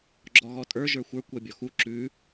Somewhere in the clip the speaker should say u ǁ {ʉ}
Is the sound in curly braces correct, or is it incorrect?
correct